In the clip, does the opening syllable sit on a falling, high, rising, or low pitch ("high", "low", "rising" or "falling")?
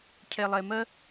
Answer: low